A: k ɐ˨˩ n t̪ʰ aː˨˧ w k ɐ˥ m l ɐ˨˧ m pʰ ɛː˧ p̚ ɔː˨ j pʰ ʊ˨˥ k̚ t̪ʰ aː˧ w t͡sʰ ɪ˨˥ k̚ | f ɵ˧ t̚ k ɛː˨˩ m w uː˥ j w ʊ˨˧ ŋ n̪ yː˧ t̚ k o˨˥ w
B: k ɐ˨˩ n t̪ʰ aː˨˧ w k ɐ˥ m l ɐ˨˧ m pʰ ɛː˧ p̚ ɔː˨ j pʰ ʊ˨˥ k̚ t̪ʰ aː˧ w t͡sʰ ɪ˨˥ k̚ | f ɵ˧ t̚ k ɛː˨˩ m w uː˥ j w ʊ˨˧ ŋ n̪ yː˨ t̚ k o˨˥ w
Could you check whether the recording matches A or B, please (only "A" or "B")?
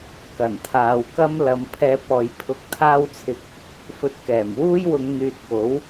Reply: B